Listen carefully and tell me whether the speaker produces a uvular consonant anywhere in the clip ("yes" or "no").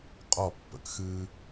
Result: yes